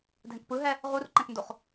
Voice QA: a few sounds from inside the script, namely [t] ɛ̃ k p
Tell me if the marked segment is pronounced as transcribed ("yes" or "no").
no